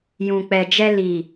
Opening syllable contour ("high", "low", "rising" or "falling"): low